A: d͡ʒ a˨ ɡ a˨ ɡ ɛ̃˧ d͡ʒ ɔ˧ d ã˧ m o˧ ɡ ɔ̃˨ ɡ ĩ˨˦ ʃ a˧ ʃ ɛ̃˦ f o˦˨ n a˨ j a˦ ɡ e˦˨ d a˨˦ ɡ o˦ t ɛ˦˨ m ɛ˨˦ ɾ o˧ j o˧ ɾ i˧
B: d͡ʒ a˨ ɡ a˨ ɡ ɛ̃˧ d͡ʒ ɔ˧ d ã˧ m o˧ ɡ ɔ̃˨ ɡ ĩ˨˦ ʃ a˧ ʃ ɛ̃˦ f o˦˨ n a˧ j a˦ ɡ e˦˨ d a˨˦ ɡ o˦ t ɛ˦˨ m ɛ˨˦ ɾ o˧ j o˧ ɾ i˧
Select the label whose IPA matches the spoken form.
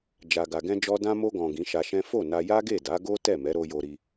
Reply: B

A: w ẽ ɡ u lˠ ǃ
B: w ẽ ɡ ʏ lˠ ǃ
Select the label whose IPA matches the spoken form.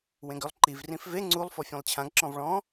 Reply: B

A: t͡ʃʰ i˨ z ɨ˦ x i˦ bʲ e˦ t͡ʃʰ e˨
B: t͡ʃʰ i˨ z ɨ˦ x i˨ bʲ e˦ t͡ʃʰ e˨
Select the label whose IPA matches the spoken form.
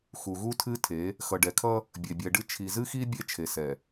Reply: A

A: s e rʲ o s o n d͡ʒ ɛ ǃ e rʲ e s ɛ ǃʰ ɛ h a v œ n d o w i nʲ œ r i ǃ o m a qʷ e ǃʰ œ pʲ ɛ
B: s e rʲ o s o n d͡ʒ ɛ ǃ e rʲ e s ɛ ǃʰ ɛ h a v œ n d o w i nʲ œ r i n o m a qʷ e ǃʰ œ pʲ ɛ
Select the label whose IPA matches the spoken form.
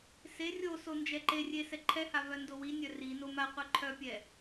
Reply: B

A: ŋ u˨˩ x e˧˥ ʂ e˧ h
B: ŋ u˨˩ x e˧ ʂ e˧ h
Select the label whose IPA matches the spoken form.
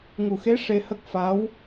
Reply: A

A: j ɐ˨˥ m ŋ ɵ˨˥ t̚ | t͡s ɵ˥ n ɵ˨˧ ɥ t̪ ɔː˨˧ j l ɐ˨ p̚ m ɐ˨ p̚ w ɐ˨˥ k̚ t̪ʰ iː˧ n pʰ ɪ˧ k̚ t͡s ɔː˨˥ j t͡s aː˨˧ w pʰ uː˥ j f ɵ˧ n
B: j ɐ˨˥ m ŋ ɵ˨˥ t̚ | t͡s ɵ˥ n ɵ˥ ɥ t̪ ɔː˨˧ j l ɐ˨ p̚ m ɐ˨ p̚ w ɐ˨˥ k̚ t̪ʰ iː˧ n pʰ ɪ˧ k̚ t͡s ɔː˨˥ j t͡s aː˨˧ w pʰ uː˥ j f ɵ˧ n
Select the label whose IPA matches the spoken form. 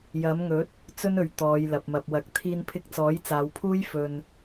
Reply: A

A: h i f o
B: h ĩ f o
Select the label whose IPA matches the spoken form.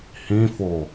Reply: B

